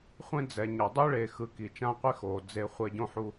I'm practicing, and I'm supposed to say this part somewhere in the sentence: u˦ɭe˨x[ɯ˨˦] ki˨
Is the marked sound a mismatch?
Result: no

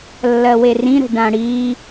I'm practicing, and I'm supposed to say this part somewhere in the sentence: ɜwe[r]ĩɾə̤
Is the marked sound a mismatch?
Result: no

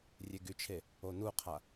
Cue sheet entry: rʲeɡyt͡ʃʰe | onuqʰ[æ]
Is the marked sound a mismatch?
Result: yes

